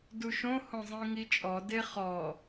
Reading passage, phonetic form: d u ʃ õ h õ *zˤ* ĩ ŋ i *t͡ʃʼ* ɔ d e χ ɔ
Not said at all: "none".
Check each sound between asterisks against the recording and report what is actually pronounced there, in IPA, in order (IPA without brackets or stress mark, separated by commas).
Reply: zˤ, t͡ʃʼ